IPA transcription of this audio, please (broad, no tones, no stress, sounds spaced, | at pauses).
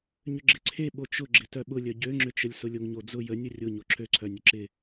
ɲ ʏ ɡ͡ǁ ɪ ǀʰ e ɓ o t͡ʃ ʊ ɡ͡ǁ ɪ t œ ɓ ʊ lʲ œ ɟ ø ŋ͡ǁ ʏ t͡ʃ ə lʲ s ʊ lʲ o ŋ ɲ o d͡z ʊ j ə nʲ ə rʲ ʊ ɲ o ǁʰ ø ǀʰ œ nʲ ʊ ǁ ɪ